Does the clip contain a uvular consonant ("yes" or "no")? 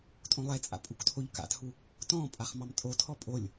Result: yes